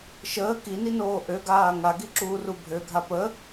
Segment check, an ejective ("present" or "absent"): absent